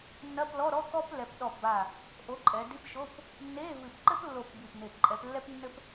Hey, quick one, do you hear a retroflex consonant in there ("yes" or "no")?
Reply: no